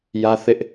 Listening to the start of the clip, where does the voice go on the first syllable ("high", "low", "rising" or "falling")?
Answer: high